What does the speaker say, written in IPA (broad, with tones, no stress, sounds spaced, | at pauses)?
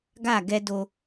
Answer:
ɡ a˦˨ ɡ ɛ˦ d o˦